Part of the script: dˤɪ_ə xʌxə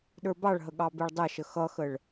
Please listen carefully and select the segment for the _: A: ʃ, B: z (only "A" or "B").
A